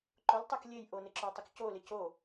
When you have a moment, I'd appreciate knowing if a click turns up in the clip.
yes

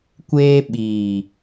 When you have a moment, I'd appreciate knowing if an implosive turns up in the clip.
yes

